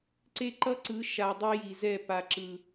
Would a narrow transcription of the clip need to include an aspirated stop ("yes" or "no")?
no